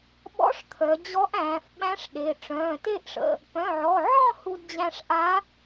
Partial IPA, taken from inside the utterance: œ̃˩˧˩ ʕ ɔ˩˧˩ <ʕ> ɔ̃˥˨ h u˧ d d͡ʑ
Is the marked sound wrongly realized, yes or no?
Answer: no